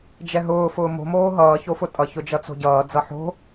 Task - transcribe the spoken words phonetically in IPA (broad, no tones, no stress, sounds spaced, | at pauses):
d͡ʒ ɛ ɦ ʊː f ʊː m o̤ m oː ɦ ʌː ç o f ʊ tʼ ʌ ç ʊ d͡ʒ ʌ t͡s o̤ ɟ ʌː d͡z ʌ ħ o̤